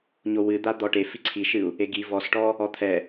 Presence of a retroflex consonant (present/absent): present